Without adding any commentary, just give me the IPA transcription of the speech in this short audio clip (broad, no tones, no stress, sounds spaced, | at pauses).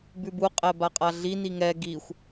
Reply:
b ʉ b u qʼ ɛ b a qʼ a ɮ i n i ŋ ɛ ɡ i xʷ